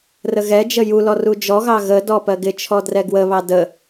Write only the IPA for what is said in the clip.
rəɣɛd͡ʒə julɔ rud͡ʒɔɣɑ ɣə dɔpɜɡɪt͡ʃʰɔ drɛɡwəβɑ də

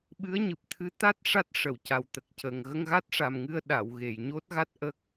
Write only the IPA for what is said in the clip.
ɓɨ˧˥ə̯ɲɨ˨˩p̚ t̪ʰɨ˧˥t̪a˦˥t̚ ʂa˦˥t̚ʂə˨˩˨wca˨˩w t̪ə˨˩k̚ cə˨˩ŋ ɣə˧ŋɣa˦˥t̚ʂa˨˩mŋɨ˧ə̯ ɗa˨˩˨wɣe˨˩˨jɲo˦˥t̚ɣa˦˥t̚ ʔə˦˥k̚

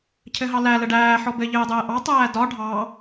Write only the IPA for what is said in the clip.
cʰɘɦɑlæ ləɖæː ħɔbɘ ʎɘːdˤɘːʔɑ tˤæːdɒ ɖʱɑ

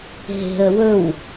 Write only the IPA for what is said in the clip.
ɦe̤ə̯ wɵw

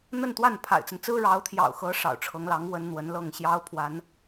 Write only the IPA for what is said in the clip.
n̪ə˥˧nt̪wa˥˩n pʰa̰˨˩ɪ̯t͡sə˦n t͡sɹ̩˥ɻɑ˧˥ʊ̯t̪ʰjɑ̰˨˩ʊ̯xɤ˧˥ ʂɑ̰˨˩ʊ̯ʈ͡ʂʰɤ˧˥ŋlɑ˧˥ŋ wə˥nn̪wə˧˥nlɤ˥˩ŋ ɕjɑ˥ʊ̯pʰwa˧˥n

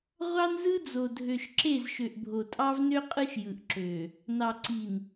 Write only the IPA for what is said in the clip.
ʁʷɑ˦nzɯ˦ d͡zo˨dʱø˨ʃǁe˦˨z ʃø˨ʔbʱo˨tʼɑ˦vnø˦ qʼɯ˦ʃjɯ˨ʔǁø˨ | nɑ˨ǀi˨n

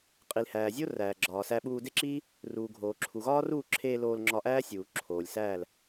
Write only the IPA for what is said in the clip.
qʼi˨lhæː˨zʲo˦ ræː˨ɡ͡ǁɒː˨sæ˧ɓuː˧ de˦ǁiː˦ | ruː˨ɡʱoː˨ ǁʰu˨ɣɒː˦ruː˦˨ǁʰeː˧ loː˧l ŋ͡ǁɒ˧ʔæː˦ sʲuː˨ǁʰoː˨lʲsæː˦˨l

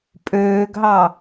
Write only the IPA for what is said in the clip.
pʼøːɡɦɑ

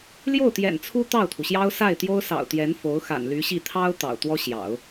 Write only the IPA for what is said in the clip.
ljo˥˩ʊ̯t̪jɛ̰˨˩n t͡sʰu˥ t̪ɑ˥˩ʊ̯t̪ʰu˩ɕjɑ˥ʊ̯ sa˥˩ɪ̯t̪jo˥ʊ̯sɑ̰˨˩ʊ̯t̪jɛ˧˥n fo˧˥ʊ̯xa̰˨˩nly˧˥ɕi˥˩ t̪ʰɑ˥ʊ̯ t̪ɑ̰˨˩ʊ̯t̪wɔ˥ ɕjɑ̰˨˩˦ʊ̯

